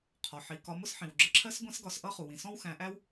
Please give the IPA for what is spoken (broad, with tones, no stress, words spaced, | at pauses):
qʰɒ˩ ħi˩ kɒ˨˦mʊ˥sħĩ˩wɡ͡ǁə˨˦ ǁʰɜ˥s ɡʷɛ̃˥sɡɒ˨˦s ʔʌ˥χu˩wĩ˩ sɔ̃˥wxæ̃˨˦ ʔæ˥w